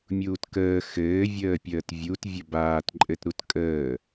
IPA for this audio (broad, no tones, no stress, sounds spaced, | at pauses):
mʲ uː t k əː x ɘː vʲ əː pʲ əː t vʲ u t vʲ ə b aː t ǃʼ ɘ t ɾ u t kʼ əː